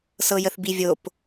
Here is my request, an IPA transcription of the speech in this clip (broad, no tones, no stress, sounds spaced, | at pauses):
s ɤ j ə θ b i vʲ o p